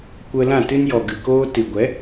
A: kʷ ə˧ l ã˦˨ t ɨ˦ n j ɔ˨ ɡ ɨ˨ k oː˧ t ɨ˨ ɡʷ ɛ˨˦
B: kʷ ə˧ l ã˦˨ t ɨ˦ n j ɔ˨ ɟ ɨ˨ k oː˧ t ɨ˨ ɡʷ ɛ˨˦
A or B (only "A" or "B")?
A